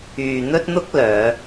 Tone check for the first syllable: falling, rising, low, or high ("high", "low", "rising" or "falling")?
low